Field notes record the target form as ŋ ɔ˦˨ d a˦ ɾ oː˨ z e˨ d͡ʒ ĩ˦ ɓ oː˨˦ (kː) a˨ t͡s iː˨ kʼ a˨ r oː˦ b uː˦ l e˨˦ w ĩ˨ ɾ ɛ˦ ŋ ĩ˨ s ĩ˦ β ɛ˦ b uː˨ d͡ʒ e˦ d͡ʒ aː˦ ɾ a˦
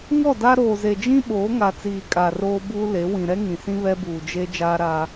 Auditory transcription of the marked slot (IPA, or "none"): ŋ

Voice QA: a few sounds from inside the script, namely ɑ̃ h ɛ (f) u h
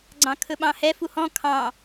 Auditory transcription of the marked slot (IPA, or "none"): f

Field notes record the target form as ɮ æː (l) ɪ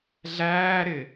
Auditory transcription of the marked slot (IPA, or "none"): ɾ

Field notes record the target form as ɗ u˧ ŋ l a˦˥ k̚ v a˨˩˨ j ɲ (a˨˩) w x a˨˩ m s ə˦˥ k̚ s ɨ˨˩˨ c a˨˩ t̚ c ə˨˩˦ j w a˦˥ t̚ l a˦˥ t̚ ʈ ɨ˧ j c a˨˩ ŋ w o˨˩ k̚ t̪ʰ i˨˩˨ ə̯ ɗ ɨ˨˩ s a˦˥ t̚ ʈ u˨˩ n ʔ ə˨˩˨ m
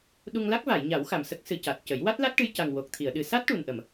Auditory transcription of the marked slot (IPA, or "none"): a˨˩˦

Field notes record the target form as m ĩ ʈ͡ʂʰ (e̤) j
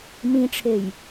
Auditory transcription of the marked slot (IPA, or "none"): e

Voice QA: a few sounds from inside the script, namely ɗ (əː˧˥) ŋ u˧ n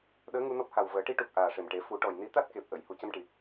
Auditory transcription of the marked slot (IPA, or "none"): əː˧˥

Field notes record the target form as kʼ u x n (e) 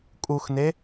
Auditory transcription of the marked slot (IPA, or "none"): e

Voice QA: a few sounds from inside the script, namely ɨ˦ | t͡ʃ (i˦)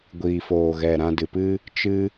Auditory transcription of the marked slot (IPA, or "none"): ɨ˦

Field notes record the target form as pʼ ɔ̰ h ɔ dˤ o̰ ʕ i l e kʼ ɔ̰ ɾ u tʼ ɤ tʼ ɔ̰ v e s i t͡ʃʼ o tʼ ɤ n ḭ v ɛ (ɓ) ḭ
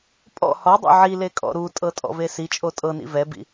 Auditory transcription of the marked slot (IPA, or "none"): b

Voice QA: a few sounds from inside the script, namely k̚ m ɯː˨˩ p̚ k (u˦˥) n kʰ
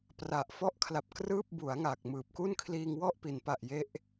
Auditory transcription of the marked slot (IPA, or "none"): u˥˩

